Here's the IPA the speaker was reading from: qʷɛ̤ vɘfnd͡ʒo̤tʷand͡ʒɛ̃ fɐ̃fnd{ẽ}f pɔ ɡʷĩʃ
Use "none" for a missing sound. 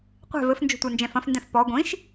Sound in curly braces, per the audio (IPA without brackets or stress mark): ɛ̃